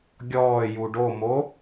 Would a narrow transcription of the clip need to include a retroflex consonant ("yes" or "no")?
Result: yes